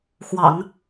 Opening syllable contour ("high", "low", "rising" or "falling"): low